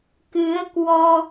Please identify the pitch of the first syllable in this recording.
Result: rising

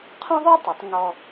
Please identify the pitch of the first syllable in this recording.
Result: high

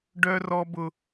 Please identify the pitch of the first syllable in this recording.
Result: high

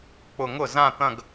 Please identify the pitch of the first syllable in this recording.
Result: falling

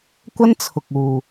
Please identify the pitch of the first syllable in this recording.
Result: high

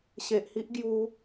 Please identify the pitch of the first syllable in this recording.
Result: low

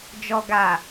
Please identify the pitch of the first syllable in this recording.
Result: low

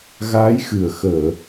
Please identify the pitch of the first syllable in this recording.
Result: rising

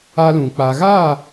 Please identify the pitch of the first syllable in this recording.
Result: high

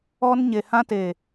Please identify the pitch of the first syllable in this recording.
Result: high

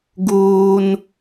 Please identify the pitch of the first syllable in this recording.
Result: low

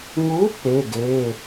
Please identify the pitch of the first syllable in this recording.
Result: rising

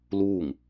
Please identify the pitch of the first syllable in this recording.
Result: falling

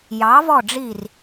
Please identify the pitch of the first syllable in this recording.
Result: rising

